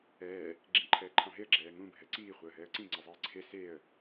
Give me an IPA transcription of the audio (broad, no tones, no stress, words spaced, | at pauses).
ɛː | ɡ͡ǁĩǃʰɛːǃʰɑ̃ɦeə̯ ɡ͡ǁɛːŋũ bʱɛǀiː χʷɑə̯ɦɛːə̯ǀĩ ŋ͡ǀɛzˤɛːǀʰe seə̯